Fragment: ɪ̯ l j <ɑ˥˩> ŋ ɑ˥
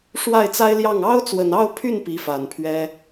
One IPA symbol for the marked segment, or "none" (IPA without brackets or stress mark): ɑ˥˩